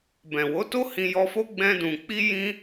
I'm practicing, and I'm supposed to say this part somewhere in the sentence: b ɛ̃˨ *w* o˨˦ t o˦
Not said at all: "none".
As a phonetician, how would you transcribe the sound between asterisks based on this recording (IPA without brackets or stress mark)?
w